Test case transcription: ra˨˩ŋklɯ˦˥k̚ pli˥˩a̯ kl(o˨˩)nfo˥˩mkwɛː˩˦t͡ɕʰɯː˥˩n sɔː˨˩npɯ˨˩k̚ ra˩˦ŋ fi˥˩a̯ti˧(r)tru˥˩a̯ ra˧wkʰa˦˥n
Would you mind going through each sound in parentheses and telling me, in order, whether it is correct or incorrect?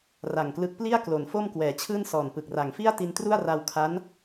incorrect: o˩˦, incorrect: n

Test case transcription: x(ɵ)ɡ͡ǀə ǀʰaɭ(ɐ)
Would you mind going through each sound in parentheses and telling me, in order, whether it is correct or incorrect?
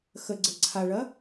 incorrect: ə, correct

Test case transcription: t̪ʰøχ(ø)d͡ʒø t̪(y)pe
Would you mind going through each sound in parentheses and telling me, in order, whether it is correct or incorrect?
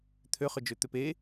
correct, incorrect: ø

